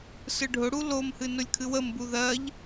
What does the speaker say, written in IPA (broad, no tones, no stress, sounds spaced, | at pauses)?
s ɯ ɖʱ ʊ ɽ u l o m h ɨ n ʊ lʲ kʰ ɨ w ə m b u ð ɜ ʎ